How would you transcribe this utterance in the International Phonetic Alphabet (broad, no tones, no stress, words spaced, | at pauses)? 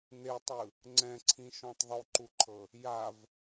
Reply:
n̪etˤɯ | ŋ͡ǀɛ̃ǀʰĩʃɔ̃tˤ ðˤuǃuǃʰɤ | jav